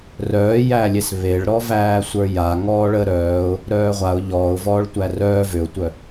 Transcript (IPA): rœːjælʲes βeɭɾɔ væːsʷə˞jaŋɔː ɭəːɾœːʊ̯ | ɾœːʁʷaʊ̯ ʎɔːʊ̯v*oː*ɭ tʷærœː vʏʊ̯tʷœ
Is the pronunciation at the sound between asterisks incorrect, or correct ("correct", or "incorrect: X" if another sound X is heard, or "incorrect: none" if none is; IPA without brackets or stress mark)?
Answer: incorrect: ɔː